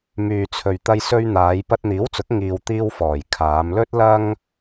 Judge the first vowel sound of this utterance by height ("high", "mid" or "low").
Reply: high